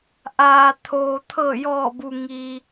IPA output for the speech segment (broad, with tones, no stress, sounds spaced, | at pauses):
ʔ aː˩ t̪ʰ oː˩ t̪ʰ ɤː˧˩ j ɔː˧˩ b u˩ ŋ iː˩